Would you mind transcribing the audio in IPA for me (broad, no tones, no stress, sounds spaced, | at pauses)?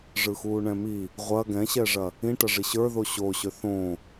ʐ ɯ x uː ɳ ɛ̃ m i | ʁʷ ɐ ɡ ɛ̃ ɕ ɛ ʐ ɐ | ĩ ʈ ɐ ʐ i ɕ ə˞ ð o ɕ o ɕ ø θ õ